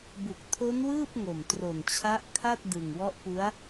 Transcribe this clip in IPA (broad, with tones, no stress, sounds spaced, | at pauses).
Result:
b u˨˩ k̚ tʰ o˦˥ n w ɯː˥˩ p̚ ŋ o˨˩ m t r o˨˩ n t͡ɕʰ a˦˥ ʔ kʰ a˥˩ t̚ d ɯ˨˩ ŋ w ɔ˦˥ ʔ p u˦˥ a̯